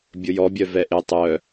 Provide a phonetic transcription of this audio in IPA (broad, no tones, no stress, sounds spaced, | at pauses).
bʲ ʊ j ɔ bʲ œ v ɛ ʔ ɪ tˤ œ